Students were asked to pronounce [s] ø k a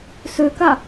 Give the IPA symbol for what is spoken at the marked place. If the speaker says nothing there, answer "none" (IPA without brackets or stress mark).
s